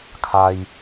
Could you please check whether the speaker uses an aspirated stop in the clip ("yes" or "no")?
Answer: yes